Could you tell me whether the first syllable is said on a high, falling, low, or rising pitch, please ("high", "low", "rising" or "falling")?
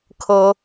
high